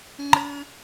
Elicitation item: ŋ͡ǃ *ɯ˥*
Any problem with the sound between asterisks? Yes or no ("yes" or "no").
no